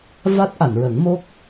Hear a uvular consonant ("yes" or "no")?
no